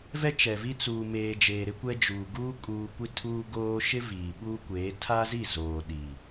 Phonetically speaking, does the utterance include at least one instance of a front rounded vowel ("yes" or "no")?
no